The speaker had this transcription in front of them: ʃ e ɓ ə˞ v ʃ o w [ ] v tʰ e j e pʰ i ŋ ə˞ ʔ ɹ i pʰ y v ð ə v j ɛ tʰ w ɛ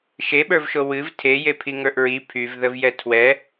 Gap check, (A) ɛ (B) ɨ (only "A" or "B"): B